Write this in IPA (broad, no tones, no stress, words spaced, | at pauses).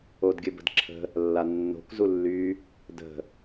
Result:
odɡʲɘbə̤dǁʰə̤ | lːanːo̤k zulːy | də̤